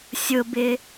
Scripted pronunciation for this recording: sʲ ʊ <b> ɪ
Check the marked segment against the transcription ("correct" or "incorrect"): correct